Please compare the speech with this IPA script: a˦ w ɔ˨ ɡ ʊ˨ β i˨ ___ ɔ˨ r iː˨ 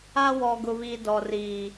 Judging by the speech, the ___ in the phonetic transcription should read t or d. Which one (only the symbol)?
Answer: d